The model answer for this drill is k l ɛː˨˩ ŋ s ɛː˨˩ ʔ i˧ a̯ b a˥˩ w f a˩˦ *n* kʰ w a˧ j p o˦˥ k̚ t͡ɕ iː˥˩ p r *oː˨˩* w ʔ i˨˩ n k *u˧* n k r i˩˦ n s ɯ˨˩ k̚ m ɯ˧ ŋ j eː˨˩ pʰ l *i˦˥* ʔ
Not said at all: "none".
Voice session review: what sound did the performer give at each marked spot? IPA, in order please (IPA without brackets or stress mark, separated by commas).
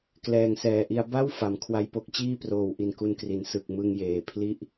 m, oː˨˩, u˧, i˥˩